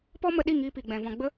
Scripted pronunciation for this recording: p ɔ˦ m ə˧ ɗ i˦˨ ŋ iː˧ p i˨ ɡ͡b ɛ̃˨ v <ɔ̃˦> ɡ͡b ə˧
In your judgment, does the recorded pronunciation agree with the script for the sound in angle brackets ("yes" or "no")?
no